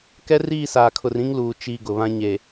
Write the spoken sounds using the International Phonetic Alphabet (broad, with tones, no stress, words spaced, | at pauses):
kɛ˦riː˦˨saː˨kʰʊ˨r ĩ˦ŋluː˨ t͡ʃi˨ ɡʊ˨βã˦ ɲe˨